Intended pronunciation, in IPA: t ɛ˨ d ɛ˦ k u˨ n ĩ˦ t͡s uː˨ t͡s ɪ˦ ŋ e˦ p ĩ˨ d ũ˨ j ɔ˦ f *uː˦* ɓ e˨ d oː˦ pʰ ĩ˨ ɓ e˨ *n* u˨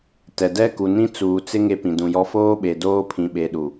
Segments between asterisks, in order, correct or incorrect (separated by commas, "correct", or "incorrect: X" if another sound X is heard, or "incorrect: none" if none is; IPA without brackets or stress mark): incorrect: oː˦, incorrect: ɗ